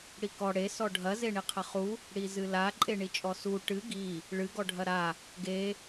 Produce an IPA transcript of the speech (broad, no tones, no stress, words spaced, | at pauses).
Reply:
ɽikɔ ɽe sɔɖʱɐ zeɳiqʰɐχu | ɽizɨla ǃʼeɳit͡ʃʼɔsu ʈɨ ɡi | ɭɨ ɡɔɖʱɐɾa | ɡe